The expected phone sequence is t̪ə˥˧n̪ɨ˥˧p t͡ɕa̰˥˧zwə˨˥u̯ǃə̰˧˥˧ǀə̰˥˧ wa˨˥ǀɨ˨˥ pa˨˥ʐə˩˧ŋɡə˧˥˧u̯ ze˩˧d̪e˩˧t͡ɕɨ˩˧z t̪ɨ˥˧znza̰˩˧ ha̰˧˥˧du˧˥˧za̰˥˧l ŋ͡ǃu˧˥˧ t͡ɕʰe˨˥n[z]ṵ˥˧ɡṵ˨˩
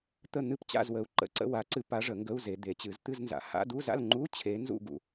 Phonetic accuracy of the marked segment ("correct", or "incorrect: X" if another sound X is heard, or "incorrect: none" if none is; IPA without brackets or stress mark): correct